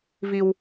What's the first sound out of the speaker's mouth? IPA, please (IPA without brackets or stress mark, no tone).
v